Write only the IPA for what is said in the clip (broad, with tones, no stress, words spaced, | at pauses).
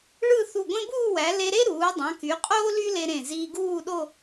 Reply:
ɭɯ˥˧ θu˧˩ɡʷẽ˥ buː˥˧wæ˩˧ le˧ɾe˥ɾuː˩˧ dˤɑ̃˩˧ky˩˧ qʼoː˥ly˥ le˧ ɾẽ˧˩ ziː˧ɡuː˥˧ɗo˥˧